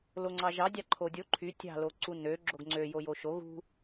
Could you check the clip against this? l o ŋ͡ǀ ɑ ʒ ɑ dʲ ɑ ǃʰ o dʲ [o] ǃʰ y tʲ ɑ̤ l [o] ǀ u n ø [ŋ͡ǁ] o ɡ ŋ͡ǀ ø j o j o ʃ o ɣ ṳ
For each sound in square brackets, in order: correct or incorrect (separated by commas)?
correct, correct, incorrect